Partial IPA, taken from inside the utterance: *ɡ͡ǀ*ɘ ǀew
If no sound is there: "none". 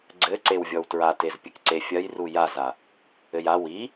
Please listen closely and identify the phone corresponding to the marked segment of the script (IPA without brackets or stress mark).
ɡ͡ǀ